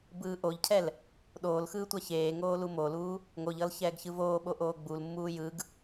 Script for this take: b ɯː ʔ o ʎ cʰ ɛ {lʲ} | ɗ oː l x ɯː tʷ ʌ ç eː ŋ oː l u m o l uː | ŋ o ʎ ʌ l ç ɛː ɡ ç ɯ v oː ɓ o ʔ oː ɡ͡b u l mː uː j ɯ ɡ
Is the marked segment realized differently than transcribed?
yes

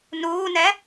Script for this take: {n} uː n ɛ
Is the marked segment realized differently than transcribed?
no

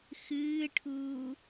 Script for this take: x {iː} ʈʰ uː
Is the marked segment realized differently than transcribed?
yes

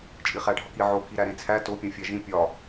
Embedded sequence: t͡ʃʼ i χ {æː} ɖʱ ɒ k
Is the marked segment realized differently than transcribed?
yes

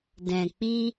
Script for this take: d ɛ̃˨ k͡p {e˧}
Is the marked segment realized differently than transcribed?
yes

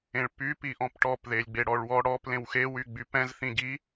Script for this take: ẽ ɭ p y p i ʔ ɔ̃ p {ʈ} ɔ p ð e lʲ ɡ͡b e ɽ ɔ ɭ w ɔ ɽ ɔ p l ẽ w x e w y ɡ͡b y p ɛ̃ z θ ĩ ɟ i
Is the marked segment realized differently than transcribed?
no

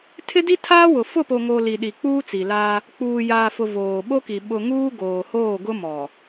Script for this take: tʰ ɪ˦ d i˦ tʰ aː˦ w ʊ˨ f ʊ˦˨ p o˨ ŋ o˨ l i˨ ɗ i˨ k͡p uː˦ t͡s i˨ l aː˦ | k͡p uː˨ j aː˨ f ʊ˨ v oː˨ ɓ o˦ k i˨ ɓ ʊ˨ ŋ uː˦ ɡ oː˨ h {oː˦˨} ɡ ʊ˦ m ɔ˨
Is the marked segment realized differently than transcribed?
no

